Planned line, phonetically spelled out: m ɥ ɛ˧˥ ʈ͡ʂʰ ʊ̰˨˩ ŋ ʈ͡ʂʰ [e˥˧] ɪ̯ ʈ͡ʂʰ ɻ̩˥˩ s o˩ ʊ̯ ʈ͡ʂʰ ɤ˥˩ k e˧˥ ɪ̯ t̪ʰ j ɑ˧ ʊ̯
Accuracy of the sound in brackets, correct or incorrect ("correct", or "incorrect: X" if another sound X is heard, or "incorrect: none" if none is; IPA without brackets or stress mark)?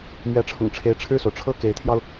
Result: incorrect: e˧˥